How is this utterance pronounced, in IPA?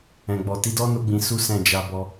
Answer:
ɛ̃˨ ɡ͡b ɔ˨ t i˨˦ d ɔ˦ n o˦ ɡ͡b ĩ˧ s u˦ s ɛ̃˦˨ d͡ʒ a˧ b ɔ˧

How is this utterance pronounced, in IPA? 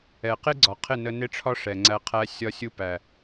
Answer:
ɛ˨ q ɪ˦ ɡ͡ǀ ɒ˨ qʰ ɪ˦˨ n ə˧ n ɪ˦ ʈ͡ʂʰ ɒ˦ ʂ ɛ˨ ŋ͡ǀ æ˧ qʰ æ˧ sʲ ɒ˧ sʲ u˧ p æ˨

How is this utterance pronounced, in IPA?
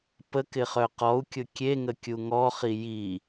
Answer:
p ə k ɪ χ œ q ɔ u̯ kʲ ʊ kʲ e ŋ ə kʲ u ŋ ɔ χ i j i

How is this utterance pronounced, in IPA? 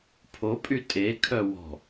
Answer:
pʰ o pʼ y tʼ e kʰ œ w ɔ̤

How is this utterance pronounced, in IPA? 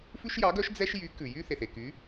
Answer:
f ʉ˥ ʃ j ɑ˧˥ ɡ œ˧˥ ʃ d͡z ɛ˥ ʃ j y˧˥ k ʉ˨ j y˥ θ e˨ θ e˨ k y˧˥

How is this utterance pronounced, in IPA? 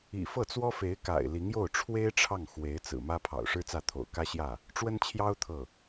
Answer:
ḭ˨˩ f ɤ˥˩ t͡s w ɔ˥ f e˧˥ ɪ̯ k a̰˨˩ ɪ̯ l i˧˥ ŋ j o˥˩ ʊ̯ ʈ͡ʂʰ w e˥ ɪ̯ ʈ͡ʂʰ ɑ˥˩ ŋ x w e˧˥ ɪ̯ t͡s ɹ̩˨˩ m ä˥ pʰ ɑ̰˨˩ ʊ̯ ʂ ɻ̩˥ t͡s ä˥˩ t̪ʰ o̰˨˩ ʊ̯ k ä˥ ɕ j ä˥˩ | ʈ͡ʂ w ə˥ n t͡ɕʰ j ɑ˥ ʊ̯ t̪ʰ ɤ˥˩

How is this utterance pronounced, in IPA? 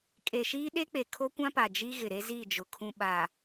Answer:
kʼ e˨ ʃ iː˦ ɗ e˦ k͡p e˨ kʰ o˦ kʷ ã˦ p a˨ d͡ʒ i˦ ɣ ɪ˨ ɾ e˦ z i˦˨ d͡ʒ ʊ˨ kʰ ũ˨ ɓ a˨

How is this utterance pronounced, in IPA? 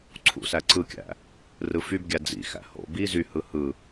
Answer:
ǀʰ ṵ s æ ǀ ɯ kʲ æ̰ | r ɯ f y b ɡʲ æ d͡z ḭ x æ̰ h o̰ b i z y h ɯ h ɯ

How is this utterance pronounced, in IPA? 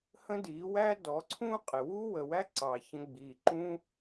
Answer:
h ə̃˦ d iː˨˦ w æ˦ d ɔ˨˦ ǀʰ ũ˦ qʼ ɪ˨ w u˦ w ə˨ w æ˦ ǀ ɑ˨ ç ə̃˧ ɡ͡b iː˨ ǃ ũ˦

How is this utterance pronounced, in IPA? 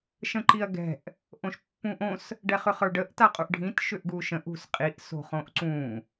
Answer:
ʃ ə̃ ǃ i ɐ̯ ɡ ɛ̤ ʔ | ʔ õ ʃ pː ũ ʔ õ s | ɖ ɛ χ ʏ χ ə˞ ɖ ə ʔ t a qʼ u ʔ ɖʱ ĩ t ʃ ʏ ʔ ɡ u ʃ ə̃ ʔ ṳ s qʼ i ʔ s o̤ χ õ ʔ ǀ ũ

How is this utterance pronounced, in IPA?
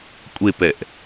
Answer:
kʷʼ e p ɛ ʔ

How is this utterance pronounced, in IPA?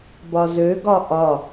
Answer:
b ɒ z ø ɡ ɒ ʔ ɒ

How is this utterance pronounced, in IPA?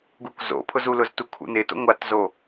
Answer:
ɡ u k z o̰ pʰ ʊ z u l ʊ z t u kʰ ṵ n ɪ t o̰ ŋʷ a t z o

